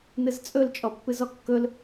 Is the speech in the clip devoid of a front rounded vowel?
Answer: yes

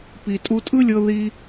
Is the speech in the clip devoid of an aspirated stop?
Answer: yes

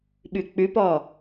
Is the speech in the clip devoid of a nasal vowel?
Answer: yes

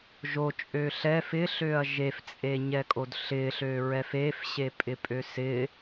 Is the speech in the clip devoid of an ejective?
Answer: no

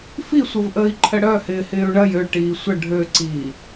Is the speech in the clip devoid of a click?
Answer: no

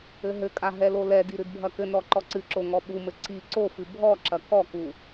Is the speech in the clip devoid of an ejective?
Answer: no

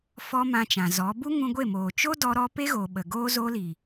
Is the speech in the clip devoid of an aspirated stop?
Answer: yes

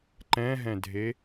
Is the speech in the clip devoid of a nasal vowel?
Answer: no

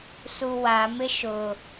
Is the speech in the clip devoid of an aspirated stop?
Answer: yes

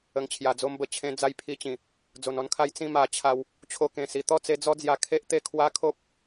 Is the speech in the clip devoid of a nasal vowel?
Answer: no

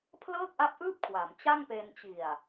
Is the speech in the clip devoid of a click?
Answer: yes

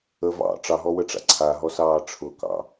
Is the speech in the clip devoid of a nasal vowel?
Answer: yes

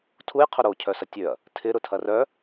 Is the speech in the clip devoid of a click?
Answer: yes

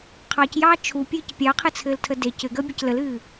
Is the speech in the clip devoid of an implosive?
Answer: yes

